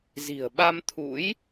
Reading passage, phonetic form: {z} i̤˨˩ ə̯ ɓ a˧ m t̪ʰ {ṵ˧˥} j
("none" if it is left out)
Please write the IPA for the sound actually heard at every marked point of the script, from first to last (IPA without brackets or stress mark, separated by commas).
z, ṵ˧˥